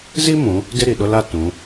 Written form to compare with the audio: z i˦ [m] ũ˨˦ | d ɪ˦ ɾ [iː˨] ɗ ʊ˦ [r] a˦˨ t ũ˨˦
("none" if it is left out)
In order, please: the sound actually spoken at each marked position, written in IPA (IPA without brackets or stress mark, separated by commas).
m, i˨, l